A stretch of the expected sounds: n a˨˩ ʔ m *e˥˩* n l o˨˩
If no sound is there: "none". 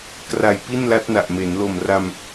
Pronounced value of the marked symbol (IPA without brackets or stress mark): e˩˦